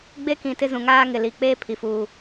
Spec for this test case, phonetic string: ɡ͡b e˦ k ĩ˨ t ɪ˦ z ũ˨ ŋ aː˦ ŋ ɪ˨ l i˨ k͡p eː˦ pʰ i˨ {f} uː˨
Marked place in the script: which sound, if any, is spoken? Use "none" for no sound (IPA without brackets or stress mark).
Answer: f